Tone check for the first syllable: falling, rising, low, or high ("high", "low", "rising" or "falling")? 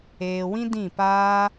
low